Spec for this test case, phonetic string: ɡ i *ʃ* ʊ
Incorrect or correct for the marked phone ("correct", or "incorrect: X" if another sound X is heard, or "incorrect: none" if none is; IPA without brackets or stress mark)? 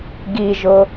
incorrect: ʒ